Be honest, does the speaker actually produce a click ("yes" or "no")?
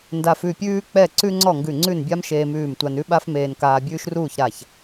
yes